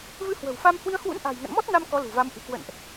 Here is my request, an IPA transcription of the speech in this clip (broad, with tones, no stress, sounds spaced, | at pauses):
v ɨ˧ h w ə̤˨˩ w f a˧ m h w i˧ ə̯ h w ṵ˧˥ n ʔ a̤˨˩ j ŋ ə̰˧˨ n m ɔ˦˥ t̚ n a˧ m k ɔ˨˦ l ṳ˨˩ v a˨˦ m ʔ ɨ̤˨˩ k w ə̰˧˨ n ʔ